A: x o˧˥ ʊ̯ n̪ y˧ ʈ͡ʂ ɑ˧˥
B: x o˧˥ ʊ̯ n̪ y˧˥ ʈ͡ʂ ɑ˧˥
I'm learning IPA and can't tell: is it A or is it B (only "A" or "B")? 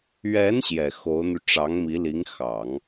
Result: A